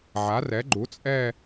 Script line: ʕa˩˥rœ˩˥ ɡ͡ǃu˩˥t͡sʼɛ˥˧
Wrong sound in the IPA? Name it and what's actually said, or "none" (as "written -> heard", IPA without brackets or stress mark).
œ˩˥ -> ɛ˩˥